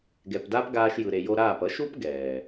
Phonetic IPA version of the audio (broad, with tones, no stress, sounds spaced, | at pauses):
ɡ ɛ˨ p d a˦ p ɡ aː˧ ʃ j ɯ˨ ɾ e˨ j o˧ ɾ aː˦˨ p ʌ˨˦ ʃ u˦ p ɡ ɛː˨